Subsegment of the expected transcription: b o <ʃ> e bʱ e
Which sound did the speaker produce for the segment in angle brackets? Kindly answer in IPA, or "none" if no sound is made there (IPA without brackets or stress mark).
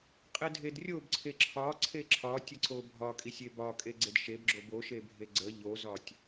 ʃ